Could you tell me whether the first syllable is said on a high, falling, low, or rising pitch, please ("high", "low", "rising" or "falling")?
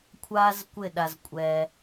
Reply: high